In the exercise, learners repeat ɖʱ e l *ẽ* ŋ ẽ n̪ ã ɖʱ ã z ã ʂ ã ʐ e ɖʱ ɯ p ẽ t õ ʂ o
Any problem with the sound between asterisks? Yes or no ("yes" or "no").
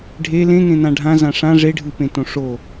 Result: no